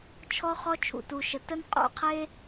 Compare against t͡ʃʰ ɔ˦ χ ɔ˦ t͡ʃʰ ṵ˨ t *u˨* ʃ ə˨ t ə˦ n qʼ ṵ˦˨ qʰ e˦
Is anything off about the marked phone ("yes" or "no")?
no